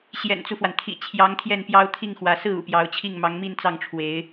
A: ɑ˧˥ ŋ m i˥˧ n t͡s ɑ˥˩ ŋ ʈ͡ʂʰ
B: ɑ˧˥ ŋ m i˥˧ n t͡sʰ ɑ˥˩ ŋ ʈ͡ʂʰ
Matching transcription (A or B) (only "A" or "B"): A